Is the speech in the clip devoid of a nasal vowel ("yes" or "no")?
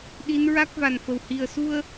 yes